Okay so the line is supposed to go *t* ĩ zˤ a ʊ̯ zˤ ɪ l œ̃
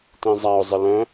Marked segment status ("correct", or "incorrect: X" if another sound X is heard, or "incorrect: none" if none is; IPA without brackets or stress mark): correct